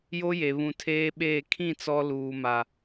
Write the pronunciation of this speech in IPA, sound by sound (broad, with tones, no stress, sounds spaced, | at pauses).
j o˦ j e˨ β ũ˨ tʰ eː˦ ɓ eː˦˨ kʰ ĩ˦˨ t͡s ɔ˦ l uː˨ m a˨